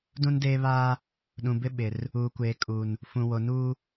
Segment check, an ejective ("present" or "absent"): present